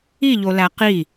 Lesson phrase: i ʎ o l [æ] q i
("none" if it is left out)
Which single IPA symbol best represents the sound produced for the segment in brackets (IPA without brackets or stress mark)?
æ